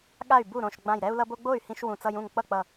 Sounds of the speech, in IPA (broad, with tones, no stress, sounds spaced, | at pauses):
ɠ a˥˩ y̯ b u˥˩ ɾ õ˧˩ ʃ ɡ͡b ã˧˩ j ɾ ɛ˦ u̯ l ʌ˦ b o˦ ɡ͡b o˥˩ y̯ h ĩ˦ ʃ w ũ˧˩ t͡s ʌ˦ j ũ˥˩ ŋ k͡p ʌ˥˩ k͡p ʌ˧˩